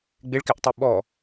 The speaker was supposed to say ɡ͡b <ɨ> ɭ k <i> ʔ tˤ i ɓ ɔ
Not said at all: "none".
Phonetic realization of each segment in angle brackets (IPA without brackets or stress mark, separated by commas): ɪ, ɪ